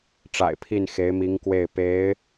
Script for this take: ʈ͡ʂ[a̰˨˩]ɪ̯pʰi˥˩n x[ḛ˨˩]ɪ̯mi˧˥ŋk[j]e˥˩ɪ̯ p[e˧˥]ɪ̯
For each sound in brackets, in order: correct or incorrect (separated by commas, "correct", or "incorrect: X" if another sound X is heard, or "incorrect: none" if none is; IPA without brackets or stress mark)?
correct, incorrect: e˧˥, incorrect: w, correct